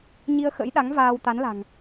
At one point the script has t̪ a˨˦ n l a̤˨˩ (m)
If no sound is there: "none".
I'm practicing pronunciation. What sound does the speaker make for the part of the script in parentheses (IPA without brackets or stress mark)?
ŋ